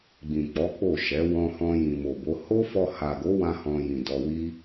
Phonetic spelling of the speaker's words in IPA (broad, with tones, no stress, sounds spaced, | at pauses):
ɡ͡b ĩ˨ k͡p ɔ˨˦ k͡p o˦˨ ʃ ɛ˨˦ w ɔ̃˧ h ɔ̃˧ j ĩ˨ m o˨ b o˨˦ h o˦ f ɔ˧ h a˨ ɡ o˨˦ w ã˦ h ɔ̃˧ j ĩ˨ d ɔ˧ w i˦